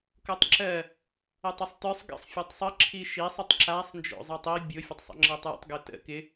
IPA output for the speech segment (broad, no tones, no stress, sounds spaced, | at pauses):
k o tˤ ǁ ɜ | ə tˤ ɪ sˤ t ə˞ sˤ ɡ ə̰ sˤ fʲ ɜ tˤ sˤ ə ǁʰ i ʃ i sˤ ɪ tˤ ǁ a sˤ n d͡ʒ o̰ zˤ ə˞ tˤ i bʲ o fʲ ə tˤ sˤ ə̰ ŋ͡ǁ ɜ tˤ j ə̰ tˤ ɡ ɵ t ə̰ k ɪ